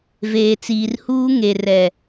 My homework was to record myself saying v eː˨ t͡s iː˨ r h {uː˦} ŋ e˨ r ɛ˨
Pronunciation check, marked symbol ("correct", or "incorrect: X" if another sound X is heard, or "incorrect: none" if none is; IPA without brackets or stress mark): correct